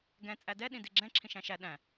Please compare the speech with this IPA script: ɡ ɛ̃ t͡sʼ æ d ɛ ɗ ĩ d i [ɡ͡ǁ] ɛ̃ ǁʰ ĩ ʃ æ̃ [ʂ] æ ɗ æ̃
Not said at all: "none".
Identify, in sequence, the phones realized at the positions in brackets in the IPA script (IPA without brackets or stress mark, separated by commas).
ɡ͡ǁ, ʃ